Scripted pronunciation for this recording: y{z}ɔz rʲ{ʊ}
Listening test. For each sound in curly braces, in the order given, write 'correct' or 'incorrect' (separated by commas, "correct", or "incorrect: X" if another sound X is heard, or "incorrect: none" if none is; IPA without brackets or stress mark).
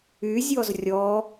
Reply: incorrect: zʲ, incorrect: ɔ